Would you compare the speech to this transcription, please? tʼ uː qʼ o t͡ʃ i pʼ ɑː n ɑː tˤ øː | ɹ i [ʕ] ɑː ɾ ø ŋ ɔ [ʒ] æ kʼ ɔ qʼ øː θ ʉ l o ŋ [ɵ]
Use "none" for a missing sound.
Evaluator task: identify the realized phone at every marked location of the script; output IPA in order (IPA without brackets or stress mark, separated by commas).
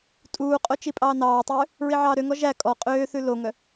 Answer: ʕ, ʒ, œ